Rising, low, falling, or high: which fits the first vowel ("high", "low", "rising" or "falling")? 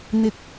low